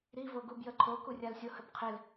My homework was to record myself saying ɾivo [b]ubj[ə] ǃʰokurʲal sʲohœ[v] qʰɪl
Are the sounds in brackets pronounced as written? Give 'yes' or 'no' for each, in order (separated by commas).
no, yes, no